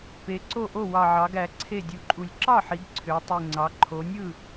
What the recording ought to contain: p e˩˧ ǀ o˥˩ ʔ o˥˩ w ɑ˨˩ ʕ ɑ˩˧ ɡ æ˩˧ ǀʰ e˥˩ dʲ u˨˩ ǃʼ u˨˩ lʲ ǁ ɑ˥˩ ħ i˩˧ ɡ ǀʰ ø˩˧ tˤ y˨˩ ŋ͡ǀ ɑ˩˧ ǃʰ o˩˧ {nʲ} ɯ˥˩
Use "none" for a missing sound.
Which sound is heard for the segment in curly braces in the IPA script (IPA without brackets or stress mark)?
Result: nʲ